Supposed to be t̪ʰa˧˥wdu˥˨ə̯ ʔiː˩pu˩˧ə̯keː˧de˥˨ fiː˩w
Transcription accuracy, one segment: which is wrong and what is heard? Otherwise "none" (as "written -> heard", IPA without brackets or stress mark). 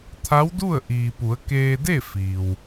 none